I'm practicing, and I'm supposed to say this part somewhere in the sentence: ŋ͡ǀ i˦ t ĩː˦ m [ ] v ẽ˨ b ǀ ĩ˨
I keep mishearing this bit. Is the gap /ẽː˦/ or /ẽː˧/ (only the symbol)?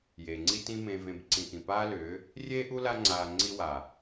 ẽː˧